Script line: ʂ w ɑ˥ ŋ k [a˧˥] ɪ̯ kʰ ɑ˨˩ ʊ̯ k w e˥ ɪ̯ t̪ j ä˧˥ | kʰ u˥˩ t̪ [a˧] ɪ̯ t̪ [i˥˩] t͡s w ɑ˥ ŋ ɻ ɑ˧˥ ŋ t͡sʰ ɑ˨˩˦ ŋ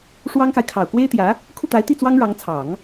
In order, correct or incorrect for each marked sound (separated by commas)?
incorrect, incorrect, correct